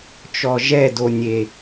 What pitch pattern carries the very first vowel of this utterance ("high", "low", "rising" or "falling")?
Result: low